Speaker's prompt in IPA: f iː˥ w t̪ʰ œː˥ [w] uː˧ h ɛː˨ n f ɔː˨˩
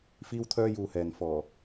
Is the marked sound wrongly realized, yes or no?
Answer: yes